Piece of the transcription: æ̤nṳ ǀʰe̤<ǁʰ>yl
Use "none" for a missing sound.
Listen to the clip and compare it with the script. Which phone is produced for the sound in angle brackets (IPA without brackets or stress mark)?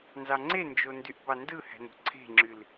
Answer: ŋ͡ǁ